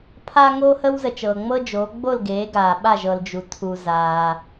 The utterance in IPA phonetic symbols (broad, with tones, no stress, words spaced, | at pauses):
pʰaː˥ŋoː˥ hə˥wzə˨t͡ʃɤː˨ ŋ͡mɤ˥d͡ʒoː˨˥ ɡ͡bo˥˨l ɡeː˨˥ɡaː˨ɓa˥˨ʒ ɤ˨ld͡ʒu˨ tʰu˨zaː˨